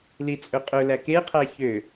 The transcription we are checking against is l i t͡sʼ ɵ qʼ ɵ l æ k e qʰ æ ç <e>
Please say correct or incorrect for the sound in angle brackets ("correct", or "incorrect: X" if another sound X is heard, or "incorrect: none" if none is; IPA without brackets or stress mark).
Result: incorrect: ø